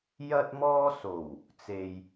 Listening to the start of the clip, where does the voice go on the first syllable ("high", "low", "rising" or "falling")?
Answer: high